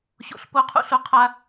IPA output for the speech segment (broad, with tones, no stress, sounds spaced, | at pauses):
ɕ o̰˦˨ ɬ p o˥ qʰ ṵ˥ ɬ o˥ qʰ a˥